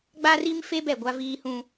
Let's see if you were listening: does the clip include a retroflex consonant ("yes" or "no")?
no